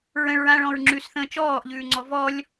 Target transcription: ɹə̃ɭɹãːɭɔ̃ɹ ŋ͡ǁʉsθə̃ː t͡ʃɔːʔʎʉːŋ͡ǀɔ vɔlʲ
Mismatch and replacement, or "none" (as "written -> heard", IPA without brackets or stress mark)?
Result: none